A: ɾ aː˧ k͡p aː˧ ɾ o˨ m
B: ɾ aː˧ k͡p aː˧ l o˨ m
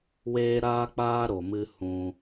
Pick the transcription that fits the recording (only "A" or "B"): A